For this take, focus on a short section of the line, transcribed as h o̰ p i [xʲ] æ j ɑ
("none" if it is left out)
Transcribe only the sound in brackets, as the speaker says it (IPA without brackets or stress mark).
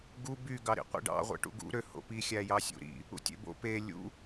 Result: xʲ